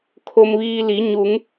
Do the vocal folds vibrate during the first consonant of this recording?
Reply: no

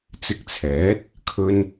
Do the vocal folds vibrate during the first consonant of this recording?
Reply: no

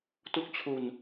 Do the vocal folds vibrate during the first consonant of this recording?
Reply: no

